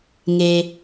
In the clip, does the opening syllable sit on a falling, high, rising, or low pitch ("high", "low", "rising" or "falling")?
low